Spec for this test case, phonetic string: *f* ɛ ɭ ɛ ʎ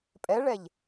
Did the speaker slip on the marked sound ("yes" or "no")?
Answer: yes